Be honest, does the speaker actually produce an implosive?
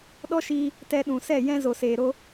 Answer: yes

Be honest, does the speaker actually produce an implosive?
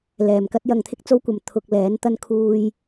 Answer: no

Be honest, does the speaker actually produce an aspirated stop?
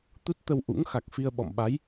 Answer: no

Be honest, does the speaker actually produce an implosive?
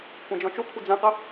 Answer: no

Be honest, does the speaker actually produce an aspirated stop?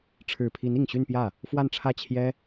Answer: yes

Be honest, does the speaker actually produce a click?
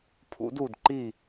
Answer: yes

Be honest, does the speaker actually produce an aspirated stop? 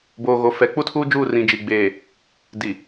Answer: yes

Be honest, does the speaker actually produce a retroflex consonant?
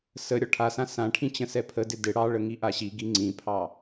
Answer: yes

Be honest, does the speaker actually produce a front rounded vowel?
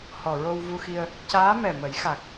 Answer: no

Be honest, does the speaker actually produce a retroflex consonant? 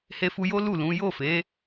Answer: no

